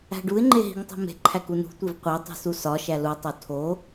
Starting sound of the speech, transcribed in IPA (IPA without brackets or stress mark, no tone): æ̤